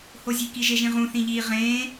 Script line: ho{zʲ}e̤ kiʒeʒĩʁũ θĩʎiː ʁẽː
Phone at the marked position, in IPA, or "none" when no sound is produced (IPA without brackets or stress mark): zʲ